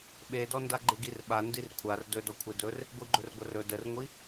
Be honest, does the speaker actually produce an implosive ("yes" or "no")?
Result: yes